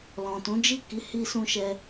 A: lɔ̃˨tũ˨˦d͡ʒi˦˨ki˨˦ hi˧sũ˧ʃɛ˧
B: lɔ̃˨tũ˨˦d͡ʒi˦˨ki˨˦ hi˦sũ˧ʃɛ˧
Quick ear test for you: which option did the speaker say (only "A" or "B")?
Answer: A